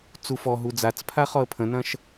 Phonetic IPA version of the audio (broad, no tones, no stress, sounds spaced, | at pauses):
t͡s u f ɔ ɦ u d͡z a t͡s pʰ a χ ɔ ə̯ pʰ ə̃ n ɐ̃ ʃ